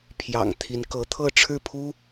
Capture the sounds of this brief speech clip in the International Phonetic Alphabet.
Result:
pʰ j ɑ̰˨˩ ŋ t̪ʰ i˧˥ n k ɤ˧˥ t̪ʰ ɤ˥˧ ʈ͡ʂʰ ɻ̩˥˩ pʰ u˥

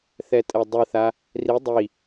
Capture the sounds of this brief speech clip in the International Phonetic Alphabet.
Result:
θ ɛ tʼ ɛ dˤ ɯ θ a | r i dˤ i

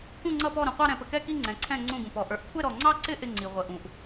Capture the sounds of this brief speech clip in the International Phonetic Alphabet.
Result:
k ũ˥˧ ŋ͡ǀ ʌ˥˧ p ɔ˥˧ ɾ ũ˧ qʷ ɑ˥˧ ɾ ɛ̃˧ p ə˧ k ɛ˥˧ k i˥˧ ŋ͡ǀ ɛ̃˧ ǀʰ ɛ̃˥˧ ŋ͡ǀ ũ˥˧ ɡ ũ˧ p ɔ˧ ʔ ə˞˧ ʔ kʷʰ ɛ˥˧ ɾ ɔ˧ ŋ͡ǀ ɑ˥˧ ǀ ɪ˥˧ ʔ ɪ˥˧ ŋ͡ǀ i˧ ʁʷ ə˧ ʔ ũ˧ ʔ

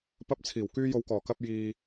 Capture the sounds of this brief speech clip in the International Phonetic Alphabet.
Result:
p ɐ˧ p̚ t͡sʰ iː˨˩ w k yː˧ j o˨˧ w k ɔː˨˩ k ɐ˧ p̚ j iː˨

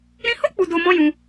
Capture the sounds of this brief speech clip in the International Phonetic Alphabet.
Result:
ɾ ĩ˧ h o˦ k͡p u˧ d o˧ m ɔ̃˦ j ũ˧

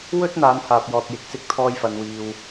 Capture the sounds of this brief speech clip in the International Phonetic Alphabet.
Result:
w ɵ˥ t̚ n̪ aː˨˧ n h aː˨ p̚ j ɔː˨ t̚ j ɪ˨˥ k̚ s ɪ˧ k̚ t̪ʰ ɔː˧ j f ɐ˨ n w iː˨ w

